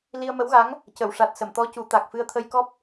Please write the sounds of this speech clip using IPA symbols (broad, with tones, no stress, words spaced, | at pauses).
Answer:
li˧ə̯mə˧˥wɣa˧˥ŋ | cə˨˩˨wʂa˨˩t̚ sə˨˩˨mt̪ɔ˧˥ cu˨˩˦t̪a˨˩k̚fɨ˧ə̯ t̪ʰə˧jkɔ˦˥p̚